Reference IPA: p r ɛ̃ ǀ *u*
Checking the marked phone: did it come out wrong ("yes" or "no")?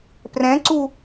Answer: no